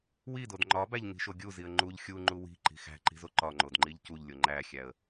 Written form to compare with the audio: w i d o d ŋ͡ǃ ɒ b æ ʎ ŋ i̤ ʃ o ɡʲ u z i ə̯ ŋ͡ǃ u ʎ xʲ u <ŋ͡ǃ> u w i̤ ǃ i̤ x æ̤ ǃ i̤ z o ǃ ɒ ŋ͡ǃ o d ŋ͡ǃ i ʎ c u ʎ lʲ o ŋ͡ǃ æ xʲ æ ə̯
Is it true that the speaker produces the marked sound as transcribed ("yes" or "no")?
yes